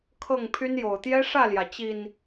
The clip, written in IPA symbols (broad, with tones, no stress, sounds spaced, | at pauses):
kʰ ɤ˥˨ ŋ pʰ y˦ n j o˨˩ ʊ̯ t̪ j ɛ˦ ʂ ä˥˨ l j ä˩ t͡ɕ i˨˩ n